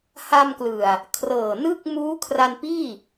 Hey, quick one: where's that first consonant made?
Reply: throat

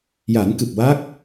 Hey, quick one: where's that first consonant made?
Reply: palate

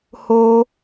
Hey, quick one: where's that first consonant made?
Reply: throat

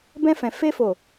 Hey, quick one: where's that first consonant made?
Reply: lips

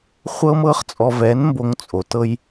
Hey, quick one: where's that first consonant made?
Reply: uvula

